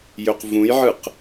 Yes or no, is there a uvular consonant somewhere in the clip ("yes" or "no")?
yes